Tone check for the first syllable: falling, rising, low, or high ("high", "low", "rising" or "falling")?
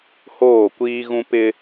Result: falling